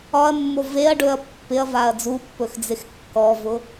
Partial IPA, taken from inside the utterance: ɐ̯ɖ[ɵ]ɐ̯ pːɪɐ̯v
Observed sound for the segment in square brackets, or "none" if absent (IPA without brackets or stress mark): ɵ